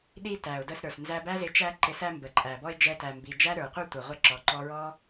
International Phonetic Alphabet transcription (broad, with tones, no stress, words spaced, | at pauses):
ɗi˥tæ˩ʊ̯də˧sɾə˞˩s nzæ˧bæ˥zɪ˧ t͡ʃæ˥ǃɪ˧ sæ˥mbə˩ǃʼæ˩bɔ˥ɪ̯ d͡ʒɛ˧tæ˩mbi˩ d͡ʒæ˥ɾə˞˩qʷə˞˥ tʷə˩ʁʷə˥ ǁɔ˩ǃɔ˧ɹɔ˥